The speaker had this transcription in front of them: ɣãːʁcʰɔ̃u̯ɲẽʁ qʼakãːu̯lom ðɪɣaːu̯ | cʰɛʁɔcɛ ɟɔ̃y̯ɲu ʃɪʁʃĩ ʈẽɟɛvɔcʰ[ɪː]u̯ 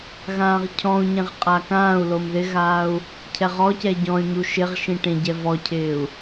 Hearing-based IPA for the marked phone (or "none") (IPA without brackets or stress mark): ɪː